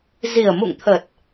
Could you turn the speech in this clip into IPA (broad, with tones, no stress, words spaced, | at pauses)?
zi˨˩ə̯mṵ˧˨ŋt̪ʰə˨˩t̚